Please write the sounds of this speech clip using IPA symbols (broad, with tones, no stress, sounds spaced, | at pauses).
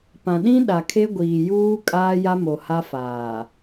p ã˨ ɗ ĩ˦ ɗ a˨ kʰ e˦ ɡʷ iː˨ j uː˦ kʼ aː˦ j a˦ m o˨ h a˦ f aː˨